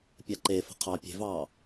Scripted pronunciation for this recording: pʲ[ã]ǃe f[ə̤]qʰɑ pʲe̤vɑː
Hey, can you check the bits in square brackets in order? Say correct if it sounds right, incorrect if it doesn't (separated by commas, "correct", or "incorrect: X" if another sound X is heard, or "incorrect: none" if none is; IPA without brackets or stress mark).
incorrect: a, correct